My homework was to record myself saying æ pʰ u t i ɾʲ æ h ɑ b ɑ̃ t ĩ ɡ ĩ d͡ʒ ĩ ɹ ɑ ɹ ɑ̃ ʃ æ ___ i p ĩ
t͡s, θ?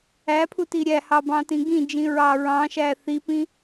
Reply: θ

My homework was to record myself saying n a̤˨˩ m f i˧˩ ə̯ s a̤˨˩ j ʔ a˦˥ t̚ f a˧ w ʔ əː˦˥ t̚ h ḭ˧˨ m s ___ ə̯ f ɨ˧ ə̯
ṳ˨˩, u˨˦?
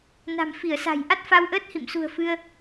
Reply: ṳ˨˩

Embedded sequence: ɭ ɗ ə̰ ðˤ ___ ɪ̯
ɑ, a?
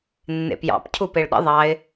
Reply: ɑ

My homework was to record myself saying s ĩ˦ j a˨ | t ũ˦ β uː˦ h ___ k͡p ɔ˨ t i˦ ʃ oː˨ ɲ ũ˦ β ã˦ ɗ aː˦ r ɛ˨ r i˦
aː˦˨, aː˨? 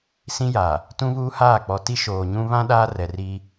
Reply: aː˦˨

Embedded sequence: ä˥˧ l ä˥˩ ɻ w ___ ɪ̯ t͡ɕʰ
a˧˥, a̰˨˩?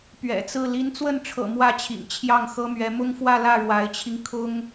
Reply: a˧˥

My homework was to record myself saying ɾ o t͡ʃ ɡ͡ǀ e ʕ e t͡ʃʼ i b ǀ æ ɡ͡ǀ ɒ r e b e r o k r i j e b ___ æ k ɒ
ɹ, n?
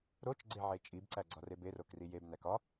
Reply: n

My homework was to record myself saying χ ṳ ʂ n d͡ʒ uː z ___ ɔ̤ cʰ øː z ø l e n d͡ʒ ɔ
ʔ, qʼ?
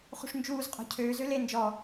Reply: qʼ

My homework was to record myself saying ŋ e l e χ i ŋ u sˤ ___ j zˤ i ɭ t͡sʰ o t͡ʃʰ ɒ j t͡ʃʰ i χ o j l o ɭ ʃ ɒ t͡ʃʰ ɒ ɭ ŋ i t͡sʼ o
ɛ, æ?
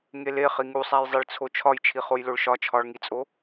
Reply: æ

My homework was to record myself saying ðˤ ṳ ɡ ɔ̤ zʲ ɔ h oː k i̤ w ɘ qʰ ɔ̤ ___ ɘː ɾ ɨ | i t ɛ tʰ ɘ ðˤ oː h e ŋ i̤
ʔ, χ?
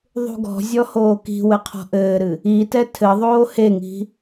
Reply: ʔ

